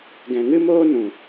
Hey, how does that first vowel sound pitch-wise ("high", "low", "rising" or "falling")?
low